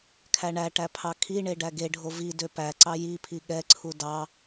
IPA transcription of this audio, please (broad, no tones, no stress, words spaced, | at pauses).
kʰæɳæʈæ pʰɑkʰiɳe ɖæɡeɖʱo vi døpæǀɑ jipʰi ɠɛǀʰu dɑ